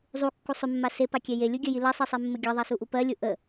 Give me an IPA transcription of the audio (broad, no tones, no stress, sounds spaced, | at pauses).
zˤ u kː u sˤ ʏ mː a s e p a kʲ ɛ j e lʲ u ɡʲ ɜ j i l ɜ sˤ i sˤ e mː ə ɡʲ ɜ ðˤ a s u ʔ u p ɜ lʲ u ʔ ə